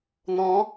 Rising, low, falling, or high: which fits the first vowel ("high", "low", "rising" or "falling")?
rising